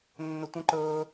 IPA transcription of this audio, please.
nː ɵ tʷ ə̃ ǃ ɵː

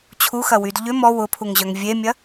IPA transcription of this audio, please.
t͡ɕʰ u x ɐ w y d ʎ ʏ m ɔ w ʊ pʰ u ŋ ʑ œ ŋ vʲ e mʲ ɐ

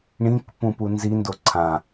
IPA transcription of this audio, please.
ɳ ĩ k p ũ p u n z i n d o ǀʰ ã

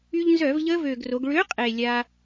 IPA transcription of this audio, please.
y˧ ʎ n z œ˧˩˧ v ʎ əː˦˥ v øː˨˩ ɡ r o˩˧ ɡ ɭ ø˨˥ qʼ e˨˩ lʲ a˧

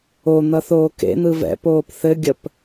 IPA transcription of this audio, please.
o n̪ ʌ θ oː k ḛ n̪ ɯ v ɛ̰ p oː p θ ɘ ɡʲ ə p

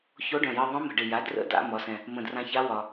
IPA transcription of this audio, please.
ç o˧˥ ɖ œ̃˨˩ j ɨ˧ ðˤ œ̃˧˥ m ə̤˨˩ ɖ ɪ˨˩ j a˩˥ d r ə̰˧˥ d a̰˧ m ɒ˩˥ s ɛ̃˧ | m ə̃˨˩ d r ã˧ ç a˧˥ w ɒ˧

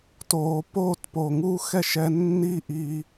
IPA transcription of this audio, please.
t oː˨ p oː˦˨ t p o˨ ŋ uː˦ x ɛ˦˨ ʃ ɛ˧ nː i˦ ʔ i˧

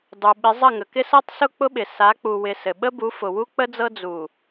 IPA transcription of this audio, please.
dˤ u˨ ɓ ɪ˨˦ zˤ ə˦˨ ŋ ə˨ k ɪ˦ s ɤ˦ tˤ s ʊ˦ k͡p ʊ˦ ɓ ɪ˨ s a˨˦ k͡p u˨ w ɪ˨ s ɘ˨ ɓ ə˦ b u˨˦ f ʊ˨ w u˦ k͡p ə˦ d͡z ɤ˦ d͡z u˨

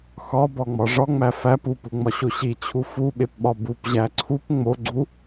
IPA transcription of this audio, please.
x ɒ b ɒ ŋ͡m ɒ ʐ ɒ ŋ͡m æ f æ p u p u ŋ͡m ɒ ɕ o ɕ i t͡ɕʰ u f u ɓ e p ɓ ɒ b u p ʑ æ ǀʰ u p ŋ͡m o ɡ͡ǀ u

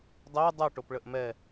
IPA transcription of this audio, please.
dˤ e dˤ o ʈ o p ɭ ə ʔ m ɛ

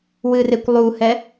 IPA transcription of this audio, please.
w ɨ r e kʷ lˠ u h ɛ

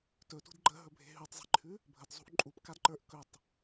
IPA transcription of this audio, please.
t ɵ t ṳ d ɡ͡ǃ ə ɦ ɵ bʱ e̤ ɦ ʉ tˤ zˤ e̤ ǃʰ ʉ | bʱ ə d zˤ ṳ ʔ ǃʼ u p k a d ǃ ə˞ ʔ k ɵ tˤ

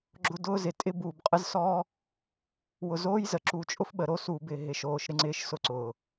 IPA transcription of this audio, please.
ɡ͡ǁ ʊ˦ d ʊː˦ z ɪ˨ tʼ ɪ˦ b uː˨ b qʼ ə˦ z s ɔː˦ | w ʊ˨ z oː˦ j z ə˨ ǁ u˦˨ t͡ʃʼ ʊ˦ f ɓ ə˨ ɾ o˦ s uː˨ b ɪ˦˨ ɦ ɪ˨ ʃ oː˨ ʃ ɾ ɪ˦ ŋ͡ǀ ɪː˦ ʃ s ʊ˦ ǀ ʊː˨

